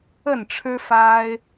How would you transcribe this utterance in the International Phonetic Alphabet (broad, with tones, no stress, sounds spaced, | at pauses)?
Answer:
ə˥˨ n ʈ͡ʂʰ ɻ̩˦ f a˦ ɪ̯